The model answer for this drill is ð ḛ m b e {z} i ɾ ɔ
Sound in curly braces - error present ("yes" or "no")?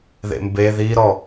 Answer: yes